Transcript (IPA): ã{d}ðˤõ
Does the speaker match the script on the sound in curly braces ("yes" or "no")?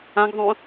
no